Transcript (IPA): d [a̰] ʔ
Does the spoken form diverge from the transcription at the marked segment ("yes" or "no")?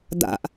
no